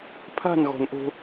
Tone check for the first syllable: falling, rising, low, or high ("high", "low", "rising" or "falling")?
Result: falling